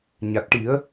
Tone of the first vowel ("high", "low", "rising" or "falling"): low